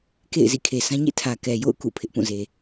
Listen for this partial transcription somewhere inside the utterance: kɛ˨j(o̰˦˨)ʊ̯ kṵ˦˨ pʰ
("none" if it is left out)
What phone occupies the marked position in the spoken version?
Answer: o̰˦˨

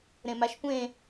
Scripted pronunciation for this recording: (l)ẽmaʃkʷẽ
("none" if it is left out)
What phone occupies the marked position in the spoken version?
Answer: ɾ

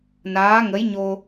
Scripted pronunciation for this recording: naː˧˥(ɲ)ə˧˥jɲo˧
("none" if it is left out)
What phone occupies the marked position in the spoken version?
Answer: ŋ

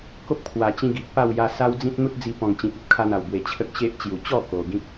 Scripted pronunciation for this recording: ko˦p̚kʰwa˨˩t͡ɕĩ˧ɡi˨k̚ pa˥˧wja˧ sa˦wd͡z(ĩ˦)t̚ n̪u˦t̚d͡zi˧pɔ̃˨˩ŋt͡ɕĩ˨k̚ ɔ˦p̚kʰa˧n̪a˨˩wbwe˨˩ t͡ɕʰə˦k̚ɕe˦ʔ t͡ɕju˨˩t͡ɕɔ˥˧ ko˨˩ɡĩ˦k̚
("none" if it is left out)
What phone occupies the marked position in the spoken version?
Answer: ĩ˦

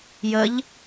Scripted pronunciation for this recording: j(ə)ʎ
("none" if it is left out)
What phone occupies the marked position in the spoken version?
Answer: ə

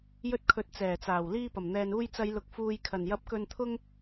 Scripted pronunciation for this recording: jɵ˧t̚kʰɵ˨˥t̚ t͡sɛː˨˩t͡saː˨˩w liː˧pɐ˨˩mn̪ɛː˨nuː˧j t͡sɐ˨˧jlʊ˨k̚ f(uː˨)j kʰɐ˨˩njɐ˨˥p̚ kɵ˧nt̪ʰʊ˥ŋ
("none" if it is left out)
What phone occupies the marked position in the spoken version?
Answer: uː˨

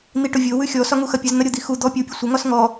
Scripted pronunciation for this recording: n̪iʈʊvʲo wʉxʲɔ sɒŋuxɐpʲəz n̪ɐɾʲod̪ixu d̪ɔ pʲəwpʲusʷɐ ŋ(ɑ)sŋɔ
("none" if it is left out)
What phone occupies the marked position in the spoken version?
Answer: ɒ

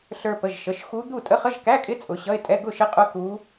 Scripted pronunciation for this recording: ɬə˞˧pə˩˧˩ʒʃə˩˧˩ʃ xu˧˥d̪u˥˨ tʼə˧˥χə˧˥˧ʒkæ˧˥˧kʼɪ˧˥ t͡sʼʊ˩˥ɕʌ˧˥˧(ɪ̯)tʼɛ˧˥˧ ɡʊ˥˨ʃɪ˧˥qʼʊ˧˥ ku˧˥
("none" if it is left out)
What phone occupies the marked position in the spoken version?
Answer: ɪ̯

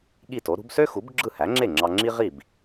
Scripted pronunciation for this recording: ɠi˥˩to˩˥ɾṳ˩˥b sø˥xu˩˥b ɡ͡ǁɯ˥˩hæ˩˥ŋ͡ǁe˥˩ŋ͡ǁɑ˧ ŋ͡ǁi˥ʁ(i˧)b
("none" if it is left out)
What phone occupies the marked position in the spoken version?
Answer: i˥˩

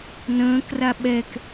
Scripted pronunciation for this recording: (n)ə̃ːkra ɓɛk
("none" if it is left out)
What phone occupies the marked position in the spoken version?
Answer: n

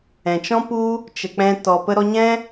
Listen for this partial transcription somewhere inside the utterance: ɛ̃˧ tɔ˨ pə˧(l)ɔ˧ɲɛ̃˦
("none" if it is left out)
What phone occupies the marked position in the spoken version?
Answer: ɾ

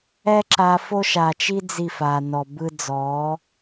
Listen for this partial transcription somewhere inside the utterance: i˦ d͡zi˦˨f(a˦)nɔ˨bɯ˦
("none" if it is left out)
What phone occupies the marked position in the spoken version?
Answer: a˨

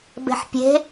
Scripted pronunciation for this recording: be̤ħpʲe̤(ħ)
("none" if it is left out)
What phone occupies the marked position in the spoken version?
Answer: none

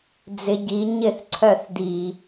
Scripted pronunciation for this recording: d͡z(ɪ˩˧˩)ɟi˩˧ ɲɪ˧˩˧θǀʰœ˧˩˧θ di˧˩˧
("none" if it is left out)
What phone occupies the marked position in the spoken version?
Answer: ɪ˩˧˩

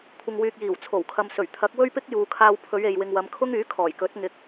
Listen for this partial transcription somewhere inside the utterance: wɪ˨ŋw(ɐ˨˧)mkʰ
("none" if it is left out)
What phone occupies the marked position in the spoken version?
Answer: ɐ˨˧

